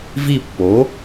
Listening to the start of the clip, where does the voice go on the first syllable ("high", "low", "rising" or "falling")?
falling